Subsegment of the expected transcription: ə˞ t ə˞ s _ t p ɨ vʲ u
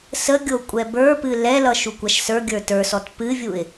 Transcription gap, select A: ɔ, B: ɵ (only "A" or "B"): A